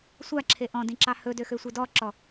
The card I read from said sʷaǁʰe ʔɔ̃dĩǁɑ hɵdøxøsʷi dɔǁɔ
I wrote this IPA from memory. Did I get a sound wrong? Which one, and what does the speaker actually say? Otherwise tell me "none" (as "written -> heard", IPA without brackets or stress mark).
none